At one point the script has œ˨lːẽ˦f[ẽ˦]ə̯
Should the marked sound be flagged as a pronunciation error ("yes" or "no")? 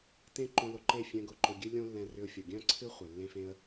no